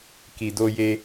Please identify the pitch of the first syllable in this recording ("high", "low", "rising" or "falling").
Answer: low